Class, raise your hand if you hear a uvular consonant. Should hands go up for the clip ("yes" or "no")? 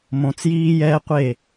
yes